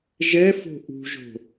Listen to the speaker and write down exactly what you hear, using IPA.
ʒ ɛ f o̤ ʔ ṳ ʒ o̤

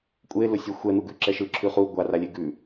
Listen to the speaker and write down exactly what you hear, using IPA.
kʷʼ e l ʊ sʲ ɛ xʷ ɛ n̪ u ɡ ʉ ǁ ɛ ʃ ɯ ǁʰ ʉ χ u ɡʷ a r a lʲ e ɡ ʉ

